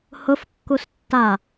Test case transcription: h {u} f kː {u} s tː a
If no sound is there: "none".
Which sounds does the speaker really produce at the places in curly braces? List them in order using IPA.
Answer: ʊ, u

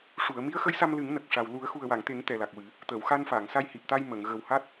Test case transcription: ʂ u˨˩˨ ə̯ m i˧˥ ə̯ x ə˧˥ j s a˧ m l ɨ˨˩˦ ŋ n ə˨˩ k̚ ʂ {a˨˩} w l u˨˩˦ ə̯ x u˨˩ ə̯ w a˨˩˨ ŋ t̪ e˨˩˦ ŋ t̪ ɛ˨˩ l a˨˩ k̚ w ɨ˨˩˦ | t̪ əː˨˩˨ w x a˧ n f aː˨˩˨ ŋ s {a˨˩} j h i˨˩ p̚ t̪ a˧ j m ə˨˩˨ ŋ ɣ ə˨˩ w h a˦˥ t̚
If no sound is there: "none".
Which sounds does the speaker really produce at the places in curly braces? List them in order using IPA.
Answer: a˨˩, a˧

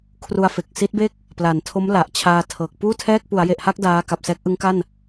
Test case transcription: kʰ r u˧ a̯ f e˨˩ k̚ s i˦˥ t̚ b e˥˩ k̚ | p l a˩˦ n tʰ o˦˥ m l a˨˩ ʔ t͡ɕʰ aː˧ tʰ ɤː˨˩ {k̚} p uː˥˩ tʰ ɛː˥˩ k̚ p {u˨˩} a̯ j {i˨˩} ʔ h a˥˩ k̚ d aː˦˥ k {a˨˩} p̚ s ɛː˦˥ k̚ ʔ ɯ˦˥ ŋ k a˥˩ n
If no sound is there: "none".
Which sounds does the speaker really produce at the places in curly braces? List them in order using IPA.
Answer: k̚, u˩˦, e˨˩, a˨˩

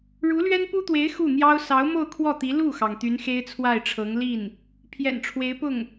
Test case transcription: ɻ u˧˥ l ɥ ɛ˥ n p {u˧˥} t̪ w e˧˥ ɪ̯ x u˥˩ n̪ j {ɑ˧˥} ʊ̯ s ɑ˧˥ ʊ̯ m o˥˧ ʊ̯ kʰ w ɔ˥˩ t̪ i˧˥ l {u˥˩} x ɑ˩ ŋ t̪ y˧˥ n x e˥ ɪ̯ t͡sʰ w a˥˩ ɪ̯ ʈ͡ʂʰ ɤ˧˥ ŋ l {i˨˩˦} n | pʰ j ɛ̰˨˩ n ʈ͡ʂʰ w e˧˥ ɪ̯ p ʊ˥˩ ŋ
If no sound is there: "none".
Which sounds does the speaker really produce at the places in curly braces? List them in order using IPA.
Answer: u˥, ɑ˥, u˥˩, i˥˩

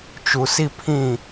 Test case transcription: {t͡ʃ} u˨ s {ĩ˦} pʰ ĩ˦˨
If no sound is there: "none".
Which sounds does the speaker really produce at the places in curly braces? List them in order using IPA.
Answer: t͡ʃ, i˦

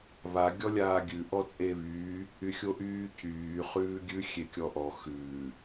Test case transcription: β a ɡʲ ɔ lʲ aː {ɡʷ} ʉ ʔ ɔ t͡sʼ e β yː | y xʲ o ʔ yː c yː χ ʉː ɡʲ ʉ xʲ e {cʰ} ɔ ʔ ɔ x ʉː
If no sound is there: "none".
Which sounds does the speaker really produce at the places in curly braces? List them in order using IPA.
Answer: ɡʲ, kʲ

